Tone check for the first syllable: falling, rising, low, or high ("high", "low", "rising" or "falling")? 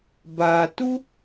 low